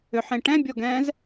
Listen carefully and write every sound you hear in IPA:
ʏħẽ ʈɛ̃bʲɔɡɛ̃ːz

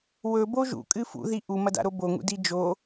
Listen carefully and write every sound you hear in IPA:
wɵbo ʒṵkʼɨ fṵði ʔumɐda̰ɾo boŋṵdi d͡ʒo

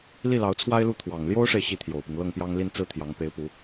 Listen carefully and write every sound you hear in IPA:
li˥˩lɑ˧˥ʊ̯t͡sʰwa˥ɪ̯lu˥˩ t̪ʰwɑ˨˩ŋ ljo˥ʊ̯ʂe˨ɪ̯ ɕi˥˩t̪ʰjo˨˩ʊ̯pi˦ŋ lɤ˥˩ŋpjɑ˥ŋli˥˧n t͡sɹ̩˥˩t̪ʰjɑ˧˥ŋ pe˧˥ɪ̯pu˧˥

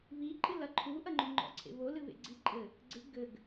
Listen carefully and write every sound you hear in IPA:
βiǃʼɨ lɐǃʰuʔɐŋ͡ǃo ŋ͡ǃɔ̰ǀʰḛβo lɨβḛɡ͡ǀi ǃʼɘ | ɡ͡ǀɨ ɡɘɡ

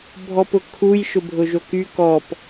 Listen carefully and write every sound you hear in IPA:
bʱɔpʊkʰuj ʃʊbʱʊʒoky kɔp

